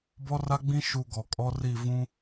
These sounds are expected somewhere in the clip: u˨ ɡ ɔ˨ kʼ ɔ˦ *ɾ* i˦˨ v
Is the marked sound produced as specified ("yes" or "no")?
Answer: no